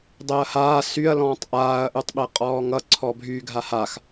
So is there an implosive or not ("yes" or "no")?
yes